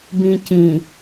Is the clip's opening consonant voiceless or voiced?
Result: voiced